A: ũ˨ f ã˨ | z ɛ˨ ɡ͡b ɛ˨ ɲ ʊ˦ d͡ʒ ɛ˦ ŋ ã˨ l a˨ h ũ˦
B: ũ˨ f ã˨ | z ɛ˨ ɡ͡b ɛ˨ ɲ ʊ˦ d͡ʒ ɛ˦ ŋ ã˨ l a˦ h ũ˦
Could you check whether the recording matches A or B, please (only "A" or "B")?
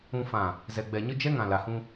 A